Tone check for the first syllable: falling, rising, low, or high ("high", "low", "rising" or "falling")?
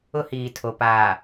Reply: high